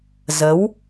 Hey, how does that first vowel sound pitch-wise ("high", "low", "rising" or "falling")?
rising